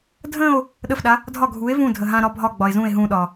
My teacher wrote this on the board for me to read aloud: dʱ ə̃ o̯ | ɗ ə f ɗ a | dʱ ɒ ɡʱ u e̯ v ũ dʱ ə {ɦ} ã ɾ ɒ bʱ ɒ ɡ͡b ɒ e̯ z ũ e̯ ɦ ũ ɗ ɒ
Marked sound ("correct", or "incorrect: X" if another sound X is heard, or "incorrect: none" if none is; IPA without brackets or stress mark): correct